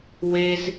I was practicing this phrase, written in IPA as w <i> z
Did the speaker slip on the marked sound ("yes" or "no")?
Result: yes